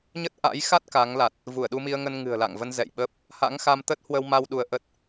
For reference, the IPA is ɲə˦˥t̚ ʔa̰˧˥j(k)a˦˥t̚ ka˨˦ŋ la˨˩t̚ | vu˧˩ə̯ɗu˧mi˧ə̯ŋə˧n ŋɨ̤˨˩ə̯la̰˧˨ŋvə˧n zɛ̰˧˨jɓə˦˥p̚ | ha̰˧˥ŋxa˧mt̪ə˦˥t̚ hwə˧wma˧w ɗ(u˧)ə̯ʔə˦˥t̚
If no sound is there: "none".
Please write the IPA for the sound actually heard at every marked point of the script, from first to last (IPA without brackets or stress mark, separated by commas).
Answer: x, u˧